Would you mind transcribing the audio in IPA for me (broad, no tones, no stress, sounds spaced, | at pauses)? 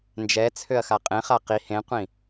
n d͡ʒ ɛ t͡sʰ ø ɐ̯ x a qʼ ẽ χ a q i h ẽ qʷ ĩ